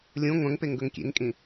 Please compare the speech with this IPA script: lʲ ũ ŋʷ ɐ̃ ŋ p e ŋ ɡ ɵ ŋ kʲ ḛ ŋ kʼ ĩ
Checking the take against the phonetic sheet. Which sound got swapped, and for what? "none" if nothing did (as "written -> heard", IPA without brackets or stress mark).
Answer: none